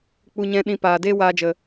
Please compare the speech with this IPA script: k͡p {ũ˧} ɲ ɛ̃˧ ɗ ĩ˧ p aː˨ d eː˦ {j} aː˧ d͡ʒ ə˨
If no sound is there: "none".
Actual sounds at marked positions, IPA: u˧, w

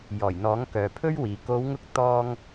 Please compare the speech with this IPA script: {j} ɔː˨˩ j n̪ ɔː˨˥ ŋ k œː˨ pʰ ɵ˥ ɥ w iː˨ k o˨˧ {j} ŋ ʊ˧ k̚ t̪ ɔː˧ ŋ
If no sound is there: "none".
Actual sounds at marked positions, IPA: j, w

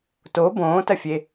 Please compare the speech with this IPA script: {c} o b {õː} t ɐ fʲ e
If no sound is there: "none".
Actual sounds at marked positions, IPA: t, õː

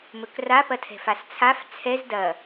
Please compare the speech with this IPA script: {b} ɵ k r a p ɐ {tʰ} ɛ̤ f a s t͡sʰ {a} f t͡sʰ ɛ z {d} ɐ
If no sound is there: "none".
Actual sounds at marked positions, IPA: m, tʰ, a, d

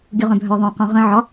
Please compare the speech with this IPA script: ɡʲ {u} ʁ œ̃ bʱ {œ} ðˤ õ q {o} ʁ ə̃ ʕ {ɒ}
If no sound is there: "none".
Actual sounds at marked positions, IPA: u, œ, õ, ɒ

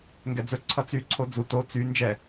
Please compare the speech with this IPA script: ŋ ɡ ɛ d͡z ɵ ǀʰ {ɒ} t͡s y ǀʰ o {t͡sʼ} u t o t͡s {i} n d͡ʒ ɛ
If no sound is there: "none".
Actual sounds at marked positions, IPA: ʌ, d͡z, y

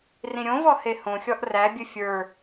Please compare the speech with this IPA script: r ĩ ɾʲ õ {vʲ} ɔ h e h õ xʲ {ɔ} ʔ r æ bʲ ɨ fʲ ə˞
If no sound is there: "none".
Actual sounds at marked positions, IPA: v, ɔ

